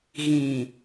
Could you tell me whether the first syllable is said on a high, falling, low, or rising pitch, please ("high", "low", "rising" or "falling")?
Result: low